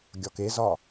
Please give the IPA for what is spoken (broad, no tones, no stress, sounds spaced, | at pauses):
ɡʲ ɒ k e z ɒ